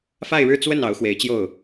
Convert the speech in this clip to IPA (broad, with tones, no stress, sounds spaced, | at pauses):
f a˥˧ ɪ̯ ɻ ɻ̩˥˧ t͡s w ə˥˩ n ɑ˧˥ ʊ̯ x w e˧˥ ɪ̯ t͡ɕ j o˥˩ ʊ̯